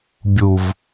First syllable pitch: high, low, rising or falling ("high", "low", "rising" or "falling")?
low